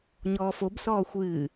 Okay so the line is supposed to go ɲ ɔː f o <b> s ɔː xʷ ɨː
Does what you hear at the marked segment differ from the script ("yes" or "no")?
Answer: no